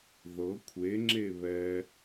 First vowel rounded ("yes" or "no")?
no